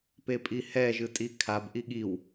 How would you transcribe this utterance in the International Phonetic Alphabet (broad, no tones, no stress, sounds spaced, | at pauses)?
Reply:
p e pʼ i h ɛ ʒ ɯ tʼ i kʰ a b ʔ i ɠ i w